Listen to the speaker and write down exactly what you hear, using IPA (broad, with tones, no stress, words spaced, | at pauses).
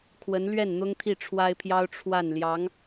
kʰwə˧˥n lɥɛ˥˩nn̪ʊ˥ŋt̪ʰi˥˩ ʈ͡ʂʰwa˥ɪ̯pʰjɑ˥ʊ̯ ʈ͡ʂʰwa˥˩n ljɑ˧˥ŋ